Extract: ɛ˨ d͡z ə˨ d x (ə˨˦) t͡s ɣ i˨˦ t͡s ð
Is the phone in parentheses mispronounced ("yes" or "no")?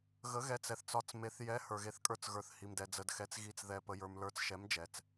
yes